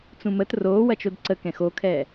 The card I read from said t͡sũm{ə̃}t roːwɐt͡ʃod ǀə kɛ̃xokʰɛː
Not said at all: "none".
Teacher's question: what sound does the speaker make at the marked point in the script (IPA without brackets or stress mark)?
ə